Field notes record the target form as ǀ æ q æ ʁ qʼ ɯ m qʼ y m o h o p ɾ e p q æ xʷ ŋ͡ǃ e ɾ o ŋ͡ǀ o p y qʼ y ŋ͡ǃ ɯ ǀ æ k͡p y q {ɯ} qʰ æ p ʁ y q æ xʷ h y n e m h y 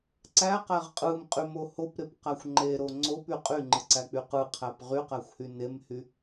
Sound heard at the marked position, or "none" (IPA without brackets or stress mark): ɯ